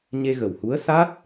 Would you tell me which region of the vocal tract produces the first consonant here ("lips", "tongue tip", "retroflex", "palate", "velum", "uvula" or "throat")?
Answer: palate